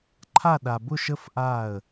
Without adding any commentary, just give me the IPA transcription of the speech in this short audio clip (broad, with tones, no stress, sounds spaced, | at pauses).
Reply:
ǃʰ a˥˧ ɗ a˧ b ʊ˥˧ ʃ ə˥ f ʔ a˥˧ ə̯